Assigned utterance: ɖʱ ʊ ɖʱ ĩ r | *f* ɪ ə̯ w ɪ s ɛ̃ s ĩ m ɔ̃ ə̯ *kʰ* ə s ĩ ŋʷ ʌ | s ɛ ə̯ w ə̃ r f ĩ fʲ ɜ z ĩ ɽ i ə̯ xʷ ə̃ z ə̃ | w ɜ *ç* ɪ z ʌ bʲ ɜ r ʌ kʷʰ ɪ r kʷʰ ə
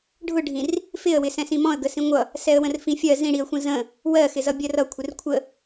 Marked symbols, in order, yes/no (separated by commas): yes, no, no